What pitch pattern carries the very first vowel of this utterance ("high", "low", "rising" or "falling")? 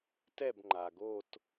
falling